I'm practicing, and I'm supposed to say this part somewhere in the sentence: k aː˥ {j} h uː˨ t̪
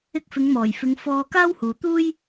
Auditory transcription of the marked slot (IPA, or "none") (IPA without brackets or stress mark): w